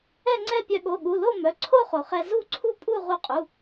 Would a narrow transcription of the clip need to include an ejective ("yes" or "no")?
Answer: yes